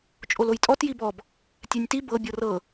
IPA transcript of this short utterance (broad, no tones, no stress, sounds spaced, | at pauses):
t͡ʃʼ o l o j tʼ ɔ t j i b ɔ b | tʲ ɛ nʲ t i b ɤ bʲ ɤ r ɤ